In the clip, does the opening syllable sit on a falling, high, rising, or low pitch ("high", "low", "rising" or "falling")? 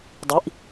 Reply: rising